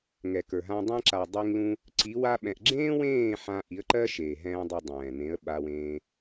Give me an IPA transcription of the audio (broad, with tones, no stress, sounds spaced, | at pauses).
ŋ ɛ˨ k ə˞˨ ɦ ã˧ dˤ ɛ̃˧ ǁ a˨ dˤ i˧ ŋ l ũ˧ | ǀ i˨˦ w a˧ ɓ ɛ̃˨ ʔ ɡ͡ǁ ẽː˦ w ẽː˦˨ ħ ã˧ ʔ i˨˦ ə̯ ǃ ɜ˦ ʃ eː˨ ɦ ɛ̃ː˧ dˤ a˧ dˤ ɛ̃ː˨ n ẽ˨˦ ə̯ ɓ a˧ w ẽː˧